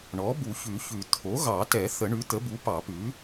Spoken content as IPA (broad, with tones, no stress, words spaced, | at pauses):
ɳɔ˩˥bu˨˩˦ çʉ˨˩˦çʉ˨˩˦ t̪ʰo˩˥ɣɑ˨˩˦tɛ˨˩˦ θə˨˩˦ɳʉ˩˥t̪ə˩˥bu˩˥ pɑ˨˩˦pʉ˩˥